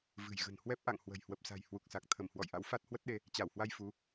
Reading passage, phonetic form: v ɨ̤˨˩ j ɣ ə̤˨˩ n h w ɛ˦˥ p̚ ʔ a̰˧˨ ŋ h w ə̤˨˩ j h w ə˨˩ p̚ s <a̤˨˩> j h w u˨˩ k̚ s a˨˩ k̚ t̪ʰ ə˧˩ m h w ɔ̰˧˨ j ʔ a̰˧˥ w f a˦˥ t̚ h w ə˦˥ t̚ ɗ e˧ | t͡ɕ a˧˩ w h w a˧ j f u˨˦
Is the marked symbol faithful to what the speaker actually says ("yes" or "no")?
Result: yes